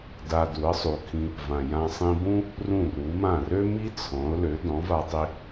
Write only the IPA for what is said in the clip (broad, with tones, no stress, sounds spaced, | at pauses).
d a˧ d u˩˥ ə̯ sˤ u˩ kʰ ĩ˧ | v ã˩ j ã˧ sˤ ĩ˧ b ũ˥ | r ũ˥˩ r u˩˥ m ã˥˩ r ø˥ m i˥ t͡sʰ ɔ̃˩˥ ʊ̯ l ø˩˥ d ɔ̃˩˥ v a˧ tˤ i˧